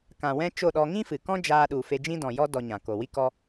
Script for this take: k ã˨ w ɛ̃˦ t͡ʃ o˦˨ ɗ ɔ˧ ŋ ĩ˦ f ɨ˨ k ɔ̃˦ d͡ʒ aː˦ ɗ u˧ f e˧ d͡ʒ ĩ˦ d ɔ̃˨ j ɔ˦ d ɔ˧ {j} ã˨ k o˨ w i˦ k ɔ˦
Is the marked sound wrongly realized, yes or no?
yes